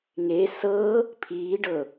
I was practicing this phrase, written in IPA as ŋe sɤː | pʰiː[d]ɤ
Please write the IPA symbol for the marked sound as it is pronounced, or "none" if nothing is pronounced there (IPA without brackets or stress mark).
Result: ɖ